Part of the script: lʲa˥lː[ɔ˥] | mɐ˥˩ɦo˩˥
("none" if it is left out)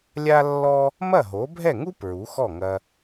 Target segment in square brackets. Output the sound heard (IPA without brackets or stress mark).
ɔ˥